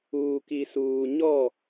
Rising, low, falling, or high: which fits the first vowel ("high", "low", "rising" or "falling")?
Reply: low